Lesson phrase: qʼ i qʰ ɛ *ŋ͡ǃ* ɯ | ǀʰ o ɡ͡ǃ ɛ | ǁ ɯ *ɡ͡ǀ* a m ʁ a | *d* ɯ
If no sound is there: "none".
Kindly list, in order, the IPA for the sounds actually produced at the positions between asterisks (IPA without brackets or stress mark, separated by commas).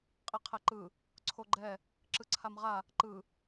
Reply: ǃ, ǀʰ, ǃ